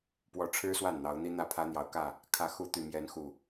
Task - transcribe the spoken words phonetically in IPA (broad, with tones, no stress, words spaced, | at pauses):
pwɔ˨˦ʈ͡ʂʰɻ̩˦ swa˥˨nn̪ɑ˨˦ʊ̯n̪i˦n̪ä˥˨ pʰä˦n̪jɑ˨˦ʊ̯kä˥˨ | kʰä˨˦xu˨˦ t̪y˨˩mjɛ˨˦n xu˨˩